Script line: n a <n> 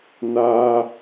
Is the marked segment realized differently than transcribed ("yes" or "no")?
yes